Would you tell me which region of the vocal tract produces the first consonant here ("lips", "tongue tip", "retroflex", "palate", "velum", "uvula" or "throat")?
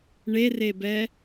retroflex